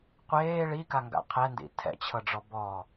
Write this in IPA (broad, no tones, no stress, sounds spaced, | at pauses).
qʷ eː ɭ i k a ŋ ɡ a̰ qʰ ɛ n d ḭ tʰ ɛ̰ t͡ɕʰ ɤ ɖ͡ʐ ɔ b ɔ